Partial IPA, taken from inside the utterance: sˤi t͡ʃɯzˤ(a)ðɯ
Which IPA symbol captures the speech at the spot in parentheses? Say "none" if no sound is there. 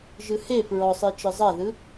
a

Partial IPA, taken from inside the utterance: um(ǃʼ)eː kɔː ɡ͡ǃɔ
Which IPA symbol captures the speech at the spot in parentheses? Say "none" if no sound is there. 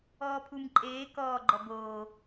ǃʼ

